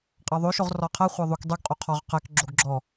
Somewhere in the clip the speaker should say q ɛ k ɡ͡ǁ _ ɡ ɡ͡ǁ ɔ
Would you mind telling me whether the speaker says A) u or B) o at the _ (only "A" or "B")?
B